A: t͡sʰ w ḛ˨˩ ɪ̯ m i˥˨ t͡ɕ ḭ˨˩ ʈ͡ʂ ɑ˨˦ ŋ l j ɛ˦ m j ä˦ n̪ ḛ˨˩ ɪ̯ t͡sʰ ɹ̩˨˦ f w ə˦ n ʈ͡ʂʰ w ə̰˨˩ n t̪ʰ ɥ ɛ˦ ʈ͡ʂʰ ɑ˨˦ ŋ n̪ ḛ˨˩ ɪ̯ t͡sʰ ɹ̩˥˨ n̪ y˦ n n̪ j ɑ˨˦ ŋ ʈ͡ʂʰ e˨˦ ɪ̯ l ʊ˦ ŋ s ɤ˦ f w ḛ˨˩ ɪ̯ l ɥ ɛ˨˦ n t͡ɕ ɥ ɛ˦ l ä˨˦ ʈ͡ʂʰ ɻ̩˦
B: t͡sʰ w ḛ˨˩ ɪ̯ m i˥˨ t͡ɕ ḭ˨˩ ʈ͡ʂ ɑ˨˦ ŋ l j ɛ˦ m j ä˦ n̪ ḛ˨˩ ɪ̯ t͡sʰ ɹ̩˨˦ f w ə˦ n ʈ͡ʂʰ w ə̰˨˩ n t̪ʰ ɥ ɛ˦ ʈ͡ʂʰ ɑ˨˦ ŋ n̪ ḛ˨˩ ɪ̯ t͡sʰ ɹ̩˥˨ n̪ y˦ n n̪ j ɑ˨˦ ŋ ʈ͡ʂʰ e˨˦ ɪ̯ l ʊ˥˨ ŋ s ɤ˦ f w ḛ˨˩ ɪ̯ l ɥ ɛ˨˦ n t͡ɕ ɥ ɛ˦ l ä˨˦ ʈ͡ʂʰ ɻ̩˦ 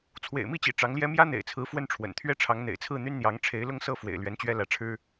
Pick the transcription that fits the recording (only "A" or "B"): A